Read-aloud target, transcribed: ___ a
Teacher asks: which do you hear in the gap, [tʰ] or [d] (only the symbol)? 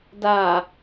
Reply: d